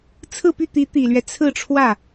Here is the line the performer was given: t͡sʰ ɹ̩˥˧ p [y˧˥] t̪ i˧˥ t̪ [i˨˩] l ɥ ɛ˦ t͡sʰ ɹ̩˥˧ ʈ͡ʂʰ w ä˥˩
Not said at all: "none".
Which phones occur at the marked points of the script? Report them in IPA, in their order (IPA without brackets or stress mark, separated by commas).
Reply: y˥˩, i˨˩